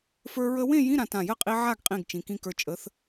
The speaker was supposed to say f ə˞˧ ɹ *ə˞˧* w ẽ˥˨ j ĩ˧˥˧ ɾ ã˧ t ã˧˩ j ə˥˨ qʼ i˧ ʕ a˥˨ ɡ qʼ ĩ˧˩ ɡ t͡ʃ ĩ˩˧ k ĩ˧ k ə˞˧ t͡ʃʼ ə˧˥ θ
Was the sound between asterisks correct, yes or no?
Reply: no